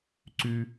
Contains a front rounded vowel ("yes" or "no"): yes